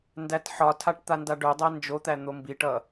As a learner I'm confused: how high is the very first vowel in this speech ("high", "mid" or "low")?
low